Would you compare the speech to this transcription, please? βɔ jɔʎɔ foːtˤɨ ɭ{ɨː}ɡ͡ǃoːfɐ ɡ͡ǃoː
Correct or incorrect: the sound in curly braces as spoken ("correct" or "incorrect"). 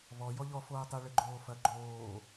incorrect